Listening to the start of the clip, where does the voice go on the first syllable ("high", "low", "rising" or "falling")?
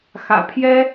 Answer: low